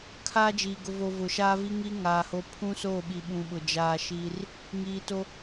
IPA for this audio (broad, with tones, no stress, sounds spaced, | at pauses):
kʰ aː˦ d͡ʒ iː˨ ɡ ʊ˨ v o˨ v ʊ˨ ʃ aː˦ v i˦ ŋ i˦ ŋ aː˨ h o˦ pʰ ũ˦ s o˦˨ ɓ i˨ ɓ ũ˨ ɓ ʊ˨ d͡ʒ aː˦ ʃ iː˦ r | ŋ iː˨ t o˦